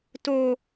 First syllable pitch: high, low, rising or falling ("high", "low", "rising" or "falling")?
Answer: high